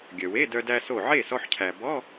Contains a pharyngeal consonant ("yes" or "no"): yes